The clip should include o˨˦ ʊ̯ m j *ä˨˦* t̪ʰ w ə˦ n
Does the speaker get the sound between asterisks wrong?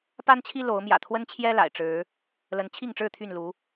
yes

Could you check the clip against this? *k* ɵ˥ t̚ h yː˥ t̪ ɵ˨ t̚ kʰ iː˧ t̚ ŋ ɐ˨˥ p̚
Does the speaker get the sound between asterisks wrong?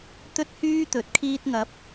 yes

